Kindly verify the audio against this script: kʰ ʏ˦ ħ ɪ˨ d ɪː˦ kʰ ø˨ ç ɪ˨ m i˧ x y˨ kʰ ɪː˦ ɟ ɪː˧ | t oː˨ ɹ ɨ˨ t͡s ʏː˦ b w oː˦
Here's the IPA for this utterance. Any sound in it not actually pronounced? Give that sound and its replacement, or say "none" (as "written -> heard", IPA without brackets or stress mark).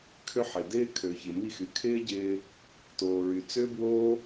ɨ˨ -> y˨